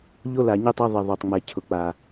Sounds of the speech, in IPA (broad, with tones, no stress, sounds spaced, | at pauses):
ʎ o˦ l a˨ ɲ ɪ˦ tˤ a˦ ðˤ i˨ ðˤ o˨ tˤ ŋ͡m ɛ˨ cʰ ʊ˨ k͡p a˨